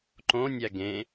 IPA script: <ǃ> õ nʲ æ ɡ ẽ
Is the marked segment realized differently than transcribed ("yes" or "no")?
no